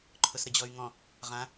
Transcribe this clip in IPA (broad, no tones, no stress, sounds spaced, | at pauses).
ǃʰ ʊ s ɾ ə d͡ʑ ɔ y̯ ŋ ɔ̃ | ʁ ã